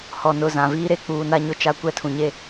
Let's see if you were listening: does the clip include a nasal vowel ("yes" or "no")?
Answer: yes